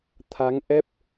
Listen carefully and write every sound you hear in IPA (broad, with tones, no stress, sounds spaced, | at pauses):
t̪ʰ a˨˦ ŋ ʔ ɛ˦˥ p̚